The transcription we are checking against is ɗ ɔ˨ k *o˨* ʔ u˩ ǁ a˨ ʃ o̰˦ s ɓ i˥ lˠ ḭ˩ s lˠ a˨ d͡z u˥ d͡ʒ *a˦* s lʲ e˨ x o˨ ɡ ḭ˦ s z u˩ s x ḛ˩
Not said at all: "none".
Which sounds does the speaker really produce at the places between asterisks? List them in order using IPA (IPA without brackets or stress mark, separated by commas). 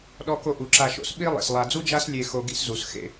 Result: o˨, a˦